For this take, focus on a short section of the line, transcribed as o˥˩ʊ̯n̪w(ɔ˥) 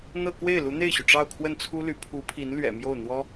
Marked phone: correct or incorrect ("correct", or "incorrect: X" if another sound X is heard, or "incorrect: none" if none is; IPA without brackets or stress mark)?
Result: correct